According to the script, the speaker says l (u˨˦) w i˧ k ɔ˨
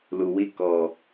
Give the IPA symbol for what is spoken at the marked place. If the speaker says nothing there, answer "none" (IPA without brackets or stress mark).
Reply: u˨